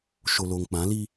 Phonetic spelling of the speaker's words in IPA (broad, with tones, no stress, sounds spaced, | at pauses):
ʃ o˨ l oː˨ ŋ k͡p ã˨˦ l i˦